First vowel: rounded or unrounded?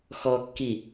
rounded